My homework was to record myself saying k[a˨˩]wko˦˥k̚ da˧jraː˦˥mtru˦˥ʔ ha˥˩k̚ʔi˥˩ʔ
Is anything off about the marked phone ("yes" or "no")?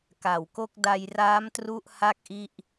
no